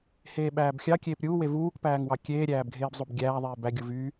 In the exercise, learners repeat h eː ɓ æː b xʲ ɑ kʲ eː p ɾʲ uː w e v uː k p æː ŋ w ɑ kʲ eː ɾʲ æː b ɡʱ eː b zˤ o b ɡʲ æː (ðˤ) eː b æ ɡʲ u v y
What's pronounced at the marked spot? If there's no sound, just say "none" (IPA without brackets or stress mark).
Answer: ðˤ